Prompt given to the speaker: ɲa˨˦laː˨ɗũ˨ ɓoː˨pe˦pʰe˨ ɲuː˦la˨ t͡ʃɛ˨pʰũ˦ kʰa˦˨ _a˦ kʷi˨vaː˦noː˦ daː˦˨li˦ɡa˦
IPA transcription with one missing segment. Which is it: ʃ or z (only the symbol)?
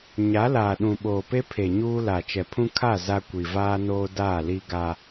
z